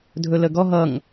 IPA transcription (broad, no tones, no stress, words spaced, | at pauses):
dʱɵləɡɔ ɦʌŋ